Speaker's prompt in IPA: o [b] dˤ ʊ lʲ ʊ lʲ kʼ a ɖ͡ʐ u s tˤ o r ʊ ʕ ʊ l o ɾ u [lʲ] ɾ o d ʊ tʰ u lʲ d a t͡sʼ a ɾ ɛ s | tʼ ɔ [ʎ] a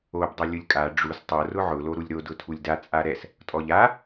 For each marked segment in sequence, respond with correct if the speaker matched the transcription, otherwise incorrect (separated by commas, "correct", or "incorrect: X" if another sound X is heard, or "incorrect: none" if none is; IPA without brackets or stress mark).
correct, correct, correct